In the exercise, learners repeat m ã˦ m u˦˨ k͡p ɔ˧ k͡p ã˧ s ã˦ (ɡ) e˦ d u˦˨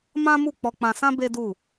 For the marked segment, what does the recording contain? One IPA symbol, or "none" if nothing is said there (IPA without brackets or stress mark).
b